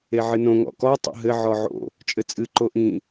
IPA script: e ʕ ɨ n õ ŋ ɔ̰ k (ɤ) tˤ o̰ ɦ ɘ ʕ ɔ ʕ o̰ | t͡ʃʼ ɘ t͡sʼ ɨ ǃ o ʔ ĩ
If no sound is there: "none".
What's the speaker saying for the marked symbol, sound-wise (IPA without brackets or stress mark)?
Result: ɔ